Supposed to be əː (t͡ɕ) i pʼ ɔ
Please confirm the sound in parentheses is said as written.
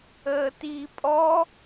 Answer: no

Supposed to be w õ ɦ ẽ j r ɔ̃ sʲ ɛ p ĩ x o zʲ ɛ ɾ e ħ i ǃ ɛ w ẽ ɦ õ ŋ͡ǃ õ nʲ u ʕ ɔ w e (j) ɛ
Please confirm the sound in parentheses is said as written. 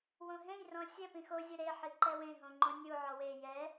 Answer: yes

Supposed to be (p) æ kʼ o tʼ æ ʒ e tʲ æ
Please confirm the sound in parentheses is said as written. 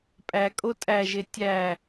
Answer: no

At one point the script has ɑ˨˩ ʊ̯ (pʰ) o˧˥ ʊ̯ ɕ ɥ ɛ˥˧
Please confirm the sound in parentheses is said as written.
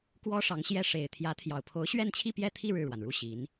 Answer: yes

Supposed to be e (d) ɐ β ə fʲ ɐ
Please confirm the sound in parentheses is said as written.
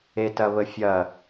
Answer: no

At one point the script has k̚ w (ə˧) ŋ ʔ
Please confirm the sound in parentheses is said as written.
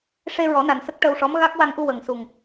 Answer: no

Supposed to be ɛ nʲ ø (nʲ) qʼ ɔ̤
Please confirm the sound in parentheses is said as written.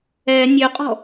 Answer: no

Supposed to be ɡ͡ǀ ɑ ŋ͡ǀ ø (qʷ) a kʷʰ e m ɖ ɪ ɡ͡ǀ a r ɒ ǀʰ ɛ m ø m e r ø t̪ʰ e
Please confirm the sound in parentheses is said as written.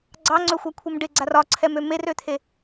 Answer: no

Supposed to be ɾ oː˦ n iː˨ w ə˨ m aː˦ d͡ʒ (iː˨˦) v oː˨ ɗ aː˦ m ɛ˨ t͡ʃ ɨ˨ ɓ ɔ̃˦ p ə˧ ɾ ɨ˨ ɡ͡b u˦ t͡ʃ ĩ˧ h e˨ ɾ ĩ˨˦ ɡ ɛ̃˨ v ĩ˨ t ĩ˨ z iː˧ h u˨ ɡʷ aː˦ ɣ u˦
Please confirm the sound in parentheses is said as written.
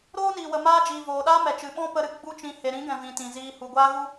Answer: no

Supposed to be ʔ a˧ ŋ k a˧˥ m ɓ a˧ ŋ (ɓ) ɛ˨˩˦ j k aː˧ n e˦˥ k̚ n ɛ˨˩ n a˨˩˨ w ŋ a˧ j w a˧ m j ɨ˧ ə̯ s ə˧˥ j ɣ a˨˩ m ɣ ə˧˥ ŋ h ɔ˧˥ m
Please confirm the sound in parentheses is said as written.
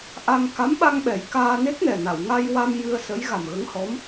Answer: yes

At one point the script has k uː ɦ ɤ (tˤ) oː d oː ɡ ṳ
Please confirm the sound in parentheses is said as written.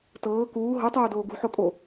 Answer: yes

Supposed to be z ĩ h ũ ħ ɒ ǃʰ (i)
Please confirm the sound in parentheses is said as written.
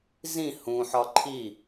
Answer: yes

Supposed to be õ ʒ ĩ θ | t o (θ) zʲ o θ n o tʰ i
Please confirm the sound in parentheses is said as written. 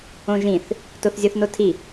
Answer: yes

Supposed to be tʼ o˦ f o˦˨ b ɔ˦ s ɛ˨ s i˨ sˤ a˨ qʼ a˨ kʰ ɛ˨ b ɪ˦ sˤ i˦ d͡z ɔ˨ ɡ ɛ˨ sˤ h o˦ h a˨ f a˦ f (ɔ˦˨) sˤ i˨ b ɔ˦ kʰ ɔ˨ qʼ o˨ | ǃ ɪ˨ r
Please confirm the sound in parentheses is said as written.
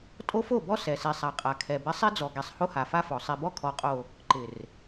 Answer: no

